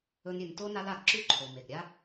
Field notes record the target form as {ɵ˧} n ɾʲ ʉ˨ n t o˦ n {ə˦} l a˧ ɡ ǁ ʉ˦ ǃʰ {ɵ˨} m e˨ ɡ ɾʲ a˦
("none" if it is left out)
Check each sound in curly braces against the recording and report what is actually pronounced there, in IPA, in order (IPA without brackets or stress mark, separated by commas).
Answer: ɵ˧, a˦, o˨